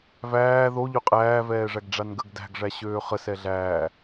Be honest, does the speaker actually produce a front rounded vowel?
yes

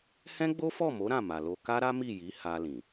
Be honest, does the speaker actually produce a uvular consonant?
no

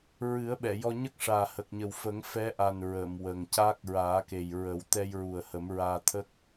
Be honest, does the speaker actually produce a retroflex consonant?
yes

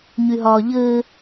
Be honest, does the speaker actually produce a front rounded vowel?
yes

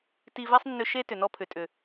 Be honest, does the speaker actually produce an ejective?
yes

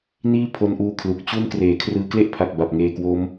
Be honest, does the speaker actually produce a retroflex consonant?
no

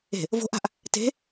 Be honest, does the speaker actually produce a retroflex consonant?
no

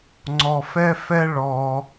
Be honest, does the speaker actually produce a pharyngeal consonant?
no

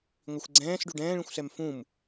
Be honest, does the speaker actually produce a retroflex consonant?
yes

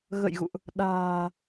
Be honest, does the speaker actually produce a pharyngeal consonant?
no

